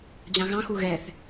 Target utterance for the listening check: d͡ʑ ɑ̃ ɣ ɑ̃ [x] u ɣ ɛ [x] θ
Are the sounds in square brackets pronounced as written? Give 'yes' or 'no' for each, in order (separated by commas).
yes, no